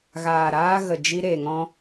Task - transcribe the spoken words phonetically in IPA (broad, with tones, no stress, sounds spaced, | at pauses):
ɣ aː˨ ɾ aː˧ ɣ ə˨ d͡ʒ i˧ ɾ e˨ ŋ ɔ̃˧